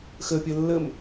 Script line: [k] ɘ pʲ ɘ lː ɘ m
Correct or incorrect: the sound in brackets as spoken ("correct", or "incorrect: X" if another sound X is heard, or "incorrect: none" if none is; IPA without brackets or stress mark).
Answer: incorrect: x